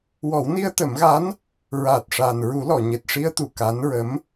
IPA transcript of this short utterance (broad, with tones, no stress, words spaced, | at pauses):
wɔ˨˩˦wni˧ə̯t̪ə˨˩˦mɣa˧˥n | ɹaː˨˩t̚ʂaː˨˩n ɹu˨˩˦lɔ˨˩˨ ɲe˨˩t̚ʂi˧ə̯t̪u˨˩ ka˧˥nɹə˧˥m